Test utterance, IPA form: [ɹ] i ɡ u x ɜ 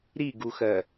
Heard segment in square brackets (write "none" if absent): ɾ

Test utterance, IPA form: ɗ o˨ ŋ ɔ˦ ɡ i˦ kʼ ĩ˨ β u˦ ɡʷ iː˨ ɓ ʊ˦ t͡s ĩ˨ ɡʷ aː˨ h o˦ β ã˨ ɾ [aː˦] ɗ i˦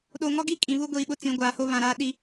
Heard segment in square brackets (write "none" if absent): aː˦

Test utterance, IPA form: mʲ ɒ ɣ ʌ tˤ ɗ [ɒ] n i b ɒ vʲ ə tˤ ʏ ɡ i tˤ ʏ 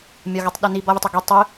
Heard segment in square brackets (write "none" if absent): ʌ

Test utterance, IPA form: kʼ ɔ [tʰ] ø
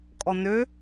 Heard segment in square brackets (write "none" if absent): n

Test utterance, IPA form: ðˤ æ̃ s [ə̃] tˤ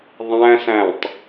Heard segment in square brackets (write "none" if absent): æ̃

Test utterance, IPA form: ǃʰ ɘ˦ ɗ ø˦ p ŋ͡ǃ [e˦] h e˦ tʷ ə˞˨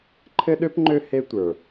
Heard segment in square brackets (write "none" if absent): ø˦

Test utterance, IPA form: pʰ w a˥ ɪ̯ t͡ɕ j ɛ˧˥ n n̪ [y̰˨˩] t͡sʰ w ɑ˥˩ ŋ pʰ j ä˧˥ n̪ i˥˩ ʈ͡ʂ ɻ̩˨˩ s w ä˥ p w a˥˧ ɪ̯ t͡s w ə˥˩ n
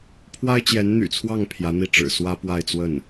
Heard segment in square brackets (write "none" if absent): y̰˨˩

